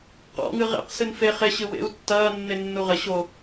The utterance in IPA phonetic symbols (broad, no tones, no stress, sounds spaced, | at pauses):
q ɔ̰ ŋ ɨ ʁ ḛ q s ɨ n f e χ e ɕ ɨ w ḛ u̯ tː ɐː nː e nː u ʁ ɘ ɕ o